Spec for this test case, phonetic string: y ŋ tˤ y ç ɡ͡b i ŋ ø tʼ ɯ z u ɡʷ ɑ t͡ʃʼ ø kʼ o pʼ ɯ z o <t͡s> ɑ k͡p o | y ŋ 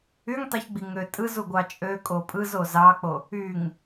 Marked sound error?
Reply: yes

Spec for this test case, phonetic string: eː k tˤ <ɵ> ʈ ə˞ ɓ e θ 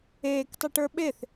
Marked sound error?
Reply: no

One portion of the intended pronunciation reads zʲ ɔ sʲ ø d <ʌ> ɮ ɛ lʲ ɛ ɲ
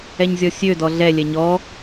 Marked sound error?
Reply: yes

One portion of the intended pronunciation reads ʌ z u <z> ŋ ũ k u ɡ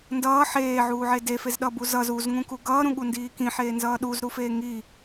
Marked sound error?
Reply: no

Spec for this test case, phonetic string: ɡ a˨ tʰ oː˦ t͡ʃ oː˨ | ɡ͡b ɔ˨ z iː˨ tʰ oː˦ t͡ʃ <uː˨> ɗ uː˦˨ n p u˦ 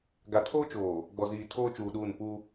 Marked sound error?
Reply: no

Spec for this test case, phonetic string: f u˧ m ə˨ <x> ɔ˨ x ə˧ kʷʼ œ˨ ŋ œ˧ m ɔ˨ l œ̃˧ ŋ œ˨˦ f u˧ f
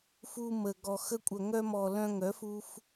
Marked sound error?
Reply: yes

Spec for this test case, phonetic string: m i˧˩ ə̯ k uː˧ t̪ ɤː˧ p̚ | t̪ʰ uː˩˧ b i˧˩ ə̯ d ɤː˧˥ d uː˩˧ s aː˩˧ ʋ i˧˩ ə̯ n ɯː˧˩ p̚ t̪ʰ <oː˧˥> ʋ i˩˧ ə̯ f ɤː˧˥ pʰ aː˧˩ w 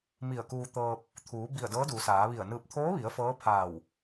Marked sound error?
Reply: no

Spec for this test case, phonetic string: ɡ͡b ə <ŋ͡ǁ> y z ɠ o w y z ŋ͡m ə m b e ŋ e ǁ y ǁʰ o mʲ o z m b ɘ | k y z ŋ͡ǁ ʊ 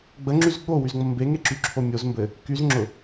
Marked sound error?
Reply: no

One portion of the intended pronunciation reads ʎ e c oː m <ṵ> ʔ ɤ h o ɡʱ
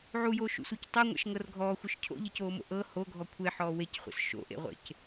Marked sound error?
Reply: yes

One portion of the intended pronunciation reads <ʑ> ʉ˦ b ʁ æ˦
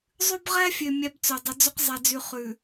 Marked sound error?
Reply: yes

